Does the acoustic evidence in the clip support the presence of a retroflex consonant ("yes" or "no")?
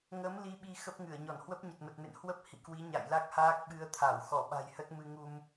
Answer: no